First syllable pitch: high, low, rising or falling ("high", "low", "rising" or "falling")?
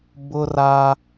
high